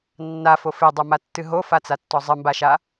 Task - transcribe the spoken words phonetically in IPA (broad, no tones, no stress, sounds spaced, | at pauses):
nː a f o f e dˤ o m a tː ɨ ɦ o f a t͡s a tː ɔ zˤ ɨ m b a ʃ a